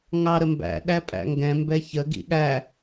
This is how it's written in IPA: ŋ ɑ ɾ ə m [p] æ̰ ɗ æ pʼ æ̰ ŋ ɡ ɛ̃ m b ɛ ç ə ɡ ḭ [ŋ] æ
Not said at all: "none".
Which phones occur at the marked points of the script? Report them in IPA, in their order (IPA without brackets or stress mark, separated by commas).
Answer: b, ɠ